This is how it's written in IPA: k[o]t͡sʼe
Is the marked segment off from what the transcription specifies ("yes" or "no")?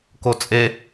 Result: no